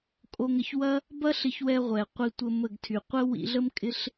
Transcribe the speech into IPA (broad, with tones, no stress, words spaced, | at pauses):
kʼo˧ŋə˧ç wɐ˦ | bɐ˦ɬɪ˧çwɛ˧ʁʷɛ˨ qʷi˧tʷə˧ mə˦˨ɡ tʰy˨ qʷə˦ wḭ˧ɮə˦mkʼɪ˦ɬ